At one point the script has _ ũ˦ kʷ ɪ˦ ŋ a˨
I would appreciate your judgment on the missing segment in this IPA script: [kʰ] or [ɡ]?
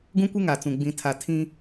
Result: ɡ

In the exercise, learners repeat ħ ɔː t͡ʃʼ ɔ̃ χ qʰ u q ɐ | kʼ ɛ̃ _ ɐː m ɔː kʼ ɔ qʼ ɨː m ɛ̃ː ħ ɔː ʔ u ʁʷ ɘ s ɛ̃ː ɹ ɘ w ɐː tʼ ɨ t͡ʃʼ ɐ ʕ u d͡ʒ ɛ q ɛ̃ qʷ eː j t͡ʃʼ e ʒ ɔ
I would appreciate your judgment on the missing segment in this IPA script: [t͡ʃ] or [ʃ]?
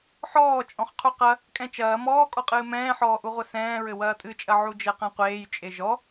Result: t͡ʃ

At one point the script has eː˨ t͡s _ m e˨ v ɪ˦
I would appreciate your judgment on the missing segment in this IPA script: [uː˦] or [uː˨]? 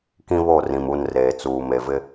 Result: uː˨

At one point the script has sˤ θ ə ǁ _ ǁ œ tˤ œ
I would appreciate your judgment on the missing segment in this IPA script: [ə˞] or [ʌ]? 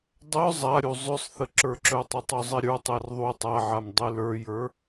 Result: ə˞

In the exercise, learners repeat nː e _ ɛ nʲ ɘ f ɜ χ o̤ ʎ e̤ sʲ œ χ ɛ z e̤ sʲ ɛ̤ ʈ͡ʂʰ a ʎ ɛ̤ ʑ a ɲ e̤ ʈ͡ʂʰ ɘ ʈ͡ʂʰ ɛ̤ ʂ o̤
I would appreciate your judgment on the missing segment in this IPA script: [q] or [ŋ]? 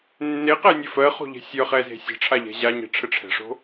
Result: q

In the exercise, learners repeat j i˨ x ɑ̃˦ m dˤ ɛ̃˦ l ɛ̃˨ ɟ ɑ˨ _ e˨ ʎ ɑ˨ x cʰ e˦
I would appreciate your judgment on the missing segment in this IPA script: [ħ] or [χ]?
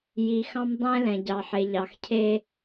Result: ħ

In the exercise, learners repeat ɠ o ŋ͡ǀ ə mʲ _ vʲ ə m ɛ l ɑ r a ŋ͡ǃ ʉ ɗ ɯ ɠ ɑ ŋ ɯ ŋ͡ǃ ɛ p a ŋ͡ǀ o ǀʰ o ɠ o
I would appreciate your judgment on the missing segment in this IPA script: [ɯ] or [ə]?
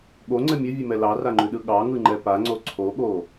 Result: ə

